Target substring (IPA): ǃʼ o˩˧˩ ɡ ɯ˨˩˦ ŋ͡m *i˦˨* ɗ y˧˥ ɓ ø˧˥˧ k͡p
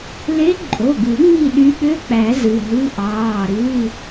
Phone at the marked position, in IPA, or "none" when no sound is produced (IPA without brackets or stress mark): i˦˨